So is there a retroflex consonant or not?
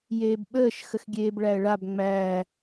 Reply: yes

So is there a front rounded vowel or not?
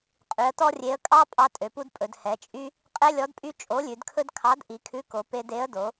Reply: yes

